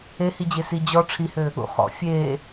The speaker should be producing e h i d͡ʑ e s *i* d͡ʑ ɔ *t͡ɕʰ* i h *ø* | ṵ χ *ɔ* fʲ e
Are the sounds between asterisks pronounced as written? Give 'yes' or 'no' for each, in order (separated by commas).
yes, no, yes, no